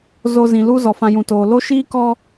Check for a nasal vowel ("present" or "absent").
present